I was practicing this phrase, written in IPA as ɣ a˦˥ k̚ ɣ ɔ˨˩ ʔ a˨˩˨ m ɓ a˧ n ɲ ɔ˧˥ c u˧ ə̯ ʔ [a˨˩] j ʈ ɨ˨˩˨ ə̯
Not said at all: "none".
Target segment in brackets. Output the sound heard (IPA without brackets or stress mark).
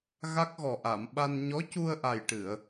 a˨˩